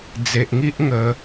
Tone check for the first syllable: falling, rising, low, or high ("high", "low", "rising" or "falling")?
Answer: low